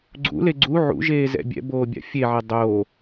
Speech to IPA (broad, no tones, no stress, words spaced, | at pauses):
ɡ͡ǀṵle ɡ͡ǀu ʕṵʒeːzɛ̰ bʲɛ̰boːbʲa̰ fʲeʕɛ dˤoː